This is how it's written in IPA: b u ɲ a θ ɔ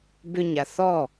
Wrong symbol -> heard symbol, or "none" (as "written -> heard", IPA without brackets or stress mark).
u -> ʏ